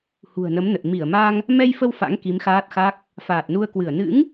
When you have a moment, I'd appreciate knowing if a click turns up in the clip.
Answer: no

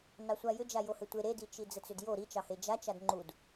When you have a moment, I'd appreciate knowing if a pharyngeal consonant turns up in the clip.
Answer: no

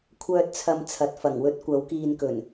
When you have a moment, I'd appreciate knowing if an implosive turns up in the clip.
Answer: no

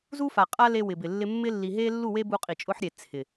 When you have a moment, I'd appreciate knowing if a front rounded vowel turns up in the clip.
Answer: no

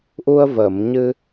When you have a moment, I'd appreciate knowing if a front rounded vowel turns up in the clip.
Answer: no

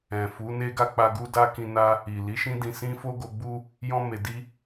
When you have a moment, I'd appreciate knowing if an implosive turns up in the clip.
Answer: no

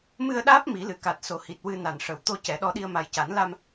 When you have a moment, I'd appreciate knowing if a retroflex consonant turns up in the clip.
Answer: yes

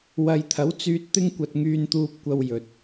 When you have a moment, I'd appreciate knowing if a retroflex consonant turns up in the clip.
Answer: no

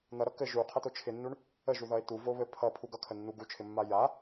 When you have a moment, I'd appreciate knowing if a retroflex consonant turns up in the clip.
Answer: yes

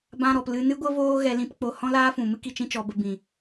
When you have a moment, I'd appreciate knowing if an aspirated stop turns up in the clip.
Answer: no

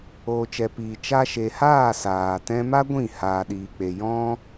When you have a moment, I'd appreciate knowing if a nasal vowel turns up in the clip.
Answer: yes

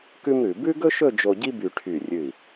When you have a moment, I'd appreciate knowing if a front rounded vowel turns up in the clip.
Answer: yes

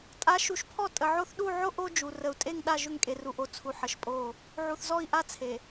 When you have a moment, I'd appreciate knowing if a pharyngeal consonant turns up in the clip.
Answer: yes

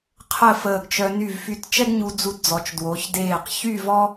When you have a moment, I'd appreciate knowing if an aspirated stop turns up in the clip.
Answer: yes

